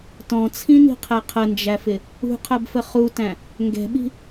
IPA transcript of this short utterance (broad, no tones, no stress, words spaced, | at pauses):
tɔ̃t͡sʰĩni̤qʰɛ qʰənd͡ʒæfɪ | ṳqʰɜbfə χutæ̃ | ŋɡɛ̤ɓi̤